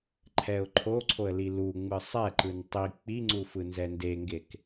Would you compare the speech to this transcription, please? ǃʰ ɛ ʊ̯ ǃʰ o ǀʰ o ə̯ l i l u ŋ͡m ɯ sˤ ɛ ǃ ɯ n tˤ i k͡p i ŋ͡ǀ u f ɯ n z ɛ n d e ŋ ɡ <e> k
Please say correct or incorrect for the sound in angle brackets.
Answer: correct